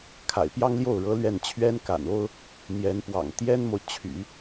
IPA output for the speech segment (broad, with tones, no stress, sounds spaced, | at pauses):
kʰ a̰˨˩ ɪ̯ p j ɑ˥ ŋ l j o˥˩ ʊ̯ ɻ ɤ˧˥ l ɥ ɛ˥˩ n t͡ɕʰ ɥ ɛ˥ n k a̰˨˩ n o˥ ʊ̯ | n̪ j ɛ˧˥ n p w ɑ̰˨˩ ŋ t̪ j ɛ˥ n m o˨ ʊ̯ t͡ɕʰ y̰˨˩˦